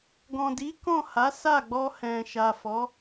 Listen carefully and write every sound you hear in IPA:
ɡ ɔ̃˨ d i˨˦ k ɔ̃˦˨ h a˨˦ s a˦˨ ɡ͡b ɔ˧ h ɛ̃˨ ʃ a˨ f ɔ˨˦

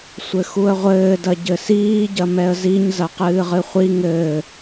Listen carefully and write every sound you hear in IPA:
sʷ ɘ x u ə̯ ʁʷ ɘː d ɐ ɟ ɘ s iː ɟ ɐ m ɛ ə̯ z i ɲ z ɐ q ɨː ʁ ɨ χʷ i ŋ ɘː

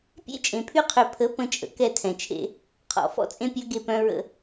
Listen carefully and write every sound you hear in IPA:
pʲ ḛ˦ t͡ʃʼ ẽ˨ pʰ y˦ qʰ ø˨ pʰ ə˨˦ p ə̃˦ t͡ʃʼ ə̰˨ k ɛ˦˨ tʰ ɛ̃˨ t͡ʃʰ ḛ˦ | qʰ ɔ̰˨ f ɔ̰˦ t͡sʼ ẽ˦ pʲ œ˦ ɡ e˦˨ p œ̃˦ ɹ ə̰˦

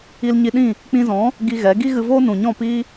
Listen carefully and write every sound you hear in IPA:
i˧ l ɲ i˧ ɗ ĩ˦˨ | k͡p ĩ˧ z ɔ̃˨˦ | ɡ i˧ ɣ ɛ˨˦ ɡ i˦ ɣ ɨ˧ v oː˦ n ũ˨ ɲ ɔ̃˦˨ p i˦

